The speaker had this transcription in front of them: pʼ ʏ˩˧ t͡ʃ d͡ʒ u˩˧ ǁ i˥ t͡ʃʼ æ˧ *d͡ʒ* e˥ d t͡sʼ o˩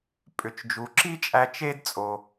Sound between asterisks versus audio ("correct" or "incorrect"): incorrect